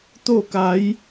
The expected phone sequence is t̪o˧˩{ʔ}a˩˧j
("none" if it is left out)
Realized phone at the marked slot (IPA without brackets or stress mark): k